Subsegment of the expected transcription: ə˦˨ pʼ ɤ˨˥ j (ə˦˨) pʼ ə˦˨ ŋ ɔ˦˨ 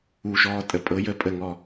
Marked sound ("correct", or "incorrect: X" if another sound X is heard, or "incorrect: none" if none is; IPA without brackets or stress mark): correct